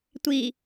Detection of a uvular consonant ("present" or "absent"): absent